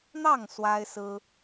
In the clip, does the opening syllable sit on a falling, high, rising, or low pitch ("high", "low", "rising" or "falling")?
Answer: falling